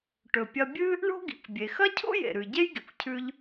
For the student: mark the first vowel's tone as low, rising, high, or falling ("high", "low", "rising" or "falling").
low